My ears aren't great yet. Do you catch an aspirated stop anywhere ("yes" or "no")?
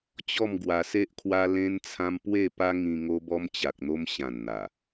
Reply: yes